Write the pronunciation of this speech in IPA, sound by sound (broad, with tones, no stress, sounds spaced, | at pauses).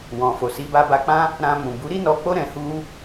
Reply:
w ɔ̃˨ f o˨ s i˨˦ b a˧ b a˧ k͡p ã˦ | ɾ ã˧ m ũ˨ b u˨˦ ɾ i˦ n ɔ˧ k͡p o˦ ɾ ɛ̃˧ h u˦